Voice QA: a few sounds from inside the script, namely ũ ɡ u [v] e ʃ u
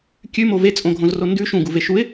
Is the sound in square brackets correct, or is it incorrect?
correct